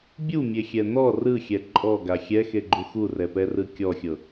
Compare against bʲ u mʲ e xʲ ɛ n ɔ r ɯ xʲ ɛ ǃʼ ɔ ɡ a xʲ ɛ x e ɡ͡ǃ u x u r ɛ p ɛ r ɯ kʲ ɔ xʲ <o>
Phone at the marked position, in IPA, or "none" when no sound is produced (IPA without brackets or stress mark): ɤ